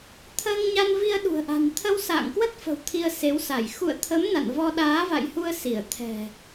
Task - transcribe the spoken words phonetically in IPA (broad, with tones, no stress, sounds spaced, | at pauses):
t̪ʰ əː˧ ŋ ɲ a˧ n v i˧ ə̯ ɗ ṳ˨˩ ə̯ ʔ a̤˨˩ n t̪ʰ ə˧ w s a̰ː˧˨ ŋ k w ə˦˥ t̚ f ə̤˨˩ w t̪ʰ i˧ ə̯ s e˨˦ w s a˧˩ j x ṵ˧˨ ə̯ t̪ʰ ə˨˦ m n a̰˧˨ n v ɔ˧ ɗ aː˨˦ v a̰˧˨ j h u˧ ə̯ s i˧˩ ə̯ t̪ʰ ɛ̤˨˩